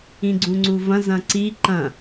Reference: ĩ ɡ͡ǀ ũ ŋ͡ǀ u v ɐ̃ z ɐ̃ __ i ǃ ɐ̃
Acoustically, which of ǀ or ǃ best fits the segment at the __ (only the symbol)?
ǀ